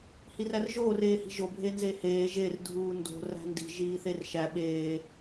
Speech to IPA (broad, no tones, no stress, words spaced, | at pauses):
hirærʒoːr eːhi̤ʒo bʱenzeheː ʒer dʱuːndo̤ ræ̤ndi̤ ʒiːθerʃæ ɓeː